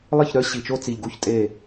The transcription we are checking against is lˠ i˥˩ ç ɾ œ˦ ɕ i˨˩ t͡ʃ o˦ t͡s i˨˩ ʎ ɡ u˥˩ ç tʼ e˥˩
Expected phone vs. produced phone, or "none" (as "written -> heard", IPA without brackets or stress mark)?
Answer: none